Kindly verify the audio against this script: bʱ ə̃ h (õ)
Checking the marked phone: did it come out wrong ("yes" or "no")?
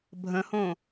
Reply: no